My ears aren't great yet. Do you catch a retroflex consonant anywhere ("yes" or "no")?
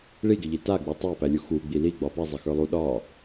yes